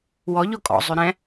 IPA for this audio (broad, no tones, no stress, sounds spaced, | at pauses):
w ɔ ʎ o kʼ ɔ̰ zˤ y ɾ ɛ̃